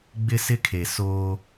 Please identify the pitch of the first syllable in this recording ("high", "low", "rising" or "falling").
high